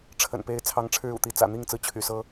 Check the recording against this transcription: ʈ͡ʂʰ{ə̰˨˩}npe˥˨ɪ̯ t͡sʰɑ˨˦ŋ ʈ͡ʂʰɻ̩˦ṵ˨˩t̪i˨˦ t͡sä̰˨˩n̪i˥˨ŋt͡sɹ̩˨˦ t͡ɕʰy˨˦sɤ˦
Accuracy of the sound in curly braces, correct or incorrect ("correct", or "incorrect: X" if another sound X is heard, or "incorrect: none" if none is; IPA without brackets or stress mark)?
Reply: correct